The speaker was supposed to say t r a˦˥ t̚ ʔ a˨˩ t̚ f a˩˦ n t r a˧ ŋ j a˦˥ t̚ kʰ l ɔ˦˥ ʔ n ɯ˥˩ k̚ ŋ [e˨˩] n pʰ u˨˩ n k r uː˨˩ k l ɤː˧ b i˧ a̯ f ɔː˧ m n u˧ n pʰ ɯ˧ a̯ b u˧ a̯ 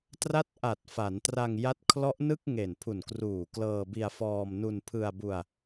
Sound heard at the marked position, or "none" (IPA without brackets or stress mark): e˨˩